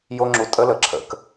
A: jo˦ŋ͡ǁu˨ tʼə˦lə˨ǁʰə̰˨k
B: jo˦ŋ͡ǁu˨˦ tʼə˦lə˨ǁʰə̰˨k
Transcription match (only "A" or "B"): A